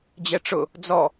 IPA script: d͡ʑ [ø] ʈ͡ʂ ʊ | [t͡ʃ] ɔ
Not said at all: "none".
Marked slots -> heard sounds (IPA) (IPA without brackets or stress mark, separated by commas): ɛ, d͡z